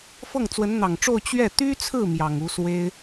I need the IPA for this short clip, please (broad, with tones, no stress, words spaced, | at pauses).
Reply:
fɤ˥˩ŋt͡swə˧˥nn̪ɑ˨˩ŋʈ͡ʂo˥˧ʊ̯ t͡ɕɥɛ˥˩ t̪y˥t͡sʰɹ̩˥˩ mjɑ˨˩ŋu˧˥swe˥ɪ̯